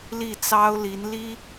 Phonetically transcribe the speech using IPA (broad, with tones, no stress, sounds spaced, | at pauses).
l i˥˩ t͡s ɑ˥ ʊ̯ l i˧˥ n l i˥